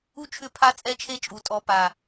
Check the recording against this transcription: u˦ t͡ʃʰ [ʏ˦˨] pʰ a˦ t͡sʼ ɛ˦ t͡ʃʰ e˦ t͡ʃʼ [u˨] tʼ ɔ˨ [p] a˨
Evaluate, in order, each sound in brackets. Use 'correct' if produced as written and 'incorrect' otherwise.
correct, correct, correct

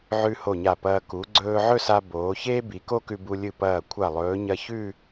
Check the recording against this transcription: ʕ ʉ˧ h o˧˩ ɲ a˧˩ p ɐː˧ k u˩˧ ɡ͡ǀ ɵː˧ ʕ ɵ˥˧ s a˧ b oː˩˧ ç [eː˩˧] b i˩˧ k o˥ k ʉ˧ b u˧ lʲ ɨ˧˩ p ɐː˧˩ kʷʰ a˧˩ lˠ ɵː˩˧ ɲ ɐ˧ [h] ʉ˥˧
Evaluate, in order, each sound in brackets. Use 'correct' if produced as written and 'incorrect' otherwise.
incorrect, incorrect

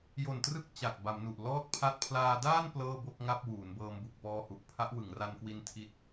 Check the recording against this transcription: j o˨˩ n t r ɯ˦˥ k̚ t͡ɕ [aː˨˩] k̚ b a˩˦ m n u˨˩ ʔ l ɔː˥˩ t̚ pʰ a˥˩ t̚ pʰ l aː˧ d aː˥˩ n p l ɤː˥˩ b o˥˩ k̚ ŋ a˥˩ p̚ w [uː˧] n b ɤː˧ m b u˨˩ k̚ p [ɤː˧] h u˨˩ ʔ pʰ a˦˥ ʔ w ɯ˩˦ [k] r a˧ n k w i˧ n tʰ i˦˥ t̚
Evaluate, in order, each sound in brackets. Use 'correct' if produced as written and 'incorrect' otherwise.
incorrect, incorrect, incorrect, incorrect

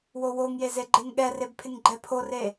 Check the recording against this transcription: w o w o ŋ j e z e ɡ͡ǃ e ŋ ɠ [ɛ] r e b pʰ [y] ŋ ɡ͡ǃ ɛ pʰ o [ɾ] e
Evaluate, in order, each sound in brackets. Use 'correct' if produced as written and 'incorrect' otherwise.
correct, incorrect, incorrect

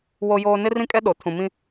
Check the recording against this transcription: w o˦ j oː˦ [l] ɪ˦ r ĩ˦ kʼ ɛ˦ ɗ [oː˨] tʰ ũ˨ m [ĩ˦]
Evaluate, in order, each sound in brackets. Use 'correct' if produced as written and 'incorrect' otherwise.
incorrect, incorrect, correct

